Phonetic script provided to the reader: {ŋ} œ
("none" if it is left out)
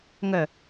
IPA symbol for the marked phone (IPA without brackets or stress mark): ŋ